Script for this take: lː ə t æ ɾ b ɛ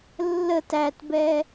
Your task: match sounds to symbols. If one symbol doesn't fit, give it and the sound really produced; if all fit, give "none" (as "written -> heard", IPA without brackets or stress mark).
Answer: ɾ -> t